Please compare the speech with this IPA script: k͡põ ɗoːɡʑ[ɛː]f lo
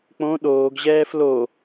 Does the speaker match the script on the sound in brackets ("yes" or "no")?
yes